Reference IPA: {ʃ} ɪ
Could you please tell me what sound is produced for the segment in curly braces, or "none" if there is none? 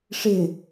ʂ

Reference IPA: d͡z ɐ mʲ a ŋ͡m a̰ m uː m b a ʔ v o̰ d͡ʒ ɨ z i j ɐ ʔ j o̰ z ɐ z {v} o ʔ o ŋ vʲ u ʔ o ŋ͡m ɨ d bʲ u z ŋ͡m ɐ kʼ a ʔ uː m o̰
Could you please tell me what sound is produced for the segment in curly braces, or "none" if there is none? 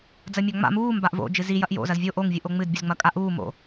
vʲ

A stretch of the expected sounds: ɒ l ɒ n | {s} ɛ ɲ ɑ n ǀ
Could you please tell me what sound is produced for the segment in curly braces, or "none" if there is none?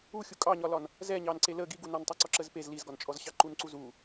z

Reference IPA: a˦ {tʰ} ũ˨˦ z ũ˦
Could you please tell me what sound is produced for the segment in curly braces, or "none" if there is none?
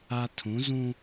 tʰ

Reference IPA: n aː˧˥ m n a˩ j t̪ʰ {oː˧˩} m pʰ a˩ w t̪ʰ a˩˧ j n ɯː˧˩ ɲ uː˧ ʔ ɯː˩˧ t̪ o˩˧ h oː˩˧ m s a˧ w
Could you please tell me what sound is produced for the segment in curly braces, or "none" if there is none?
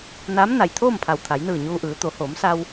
oː˥˨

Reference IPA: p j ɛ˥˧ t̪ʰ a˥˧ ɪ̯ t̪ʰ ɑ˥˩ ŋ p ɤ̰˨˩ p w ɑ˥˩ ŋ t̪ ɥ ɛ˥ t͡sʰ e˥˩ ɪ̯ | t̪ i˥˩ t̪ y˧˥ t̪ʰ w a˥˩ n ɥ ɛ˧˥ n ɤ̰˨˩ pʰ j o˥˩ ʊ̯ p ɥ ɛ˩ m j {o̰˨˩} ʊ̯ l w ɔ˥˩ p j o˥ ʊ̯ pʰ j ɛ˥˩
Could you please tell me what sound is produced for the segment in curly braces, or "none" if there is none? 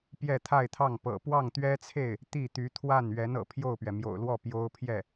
o̰˨˩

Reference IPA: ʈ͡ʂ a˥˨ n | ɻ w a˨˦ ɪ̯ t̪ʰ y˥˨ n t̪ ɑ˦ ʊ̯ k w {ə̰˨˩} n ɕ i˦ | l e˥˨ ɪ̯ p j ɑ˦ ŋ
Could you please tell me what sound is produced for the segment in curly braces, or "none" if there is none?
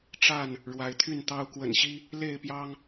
ə̰˨˩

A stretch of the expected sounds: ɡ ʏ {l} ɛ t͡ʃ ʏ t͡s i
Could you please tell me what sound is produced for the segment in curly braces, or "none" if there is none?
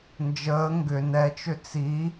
n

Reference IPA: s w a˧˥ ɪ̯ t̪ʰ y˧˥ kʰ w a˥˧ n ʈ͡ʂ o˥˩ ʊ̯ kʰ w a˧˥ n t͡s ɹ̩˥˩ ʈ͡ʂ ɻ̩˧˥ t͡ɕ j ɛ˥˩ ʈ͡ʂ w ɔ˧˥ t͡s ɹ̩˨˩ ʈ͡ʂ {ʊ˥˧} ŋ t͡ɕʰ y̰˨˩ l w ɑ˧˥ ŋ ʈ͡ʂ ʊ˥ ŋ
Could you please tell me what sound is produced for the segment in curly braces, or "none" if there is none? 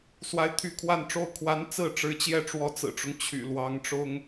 ʊ˦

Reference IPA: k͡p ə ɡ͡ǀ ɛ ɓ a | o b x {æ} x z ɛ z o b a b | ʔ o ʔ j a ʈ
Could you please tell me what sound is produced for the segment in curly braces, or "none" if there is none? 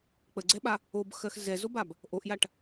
ɜ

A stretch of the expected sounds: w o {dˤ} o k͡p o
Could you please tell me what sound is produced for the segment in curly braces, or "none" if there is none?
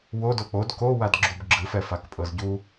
d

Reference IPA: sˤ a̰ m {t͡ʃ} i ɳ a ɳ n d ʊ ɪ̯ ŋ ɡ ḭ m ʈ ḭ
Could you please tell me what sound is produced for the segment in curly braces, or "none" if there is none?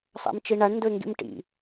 t͡ʃ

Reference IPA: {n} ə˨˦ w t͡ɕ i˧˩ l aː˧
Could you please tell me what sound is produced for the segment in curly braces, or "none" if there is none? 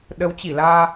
ɗ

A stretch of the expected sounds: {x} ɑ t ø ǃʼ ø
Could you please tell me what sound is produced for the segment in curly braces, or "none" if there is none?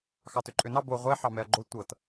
x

